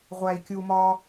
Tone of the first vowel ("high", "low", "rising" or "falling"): low